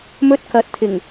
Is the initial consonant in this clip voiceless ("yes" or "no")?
no